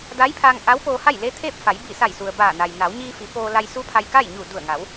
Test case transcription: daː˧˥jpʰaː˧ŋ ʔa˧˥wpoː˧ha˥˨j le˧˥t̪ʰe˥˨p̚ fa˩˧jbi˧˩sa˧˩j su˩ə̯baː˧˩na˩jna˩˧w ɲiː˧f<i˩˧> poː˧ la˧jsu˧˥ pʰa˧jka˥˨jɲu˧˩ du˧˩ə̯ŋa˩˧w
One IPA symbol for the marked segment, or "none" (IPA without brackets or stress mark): i˩˧